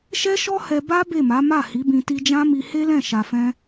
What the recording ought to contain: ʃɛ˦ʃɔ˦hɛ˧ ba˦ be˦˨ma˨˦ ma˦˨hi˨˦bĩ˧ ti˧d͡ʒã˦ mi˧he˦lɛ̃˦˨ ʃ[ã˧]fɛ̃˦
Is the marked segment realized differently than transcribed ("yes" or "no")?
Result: yes